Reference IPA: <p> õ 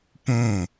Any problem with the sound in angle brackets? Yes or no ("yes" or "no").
no